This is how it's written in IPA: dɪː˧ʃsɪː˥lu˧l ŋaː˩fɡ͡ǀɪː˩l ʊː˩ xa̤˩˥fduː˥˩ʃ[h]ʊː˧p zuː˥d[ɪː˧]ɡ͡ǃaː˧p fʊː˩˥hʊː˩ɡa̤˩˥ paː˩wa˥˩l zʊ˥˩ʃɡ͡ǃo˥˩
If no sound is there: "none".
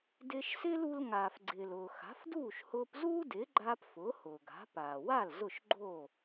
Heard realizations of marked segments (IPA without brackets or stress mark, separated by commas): h, ɪː˩˥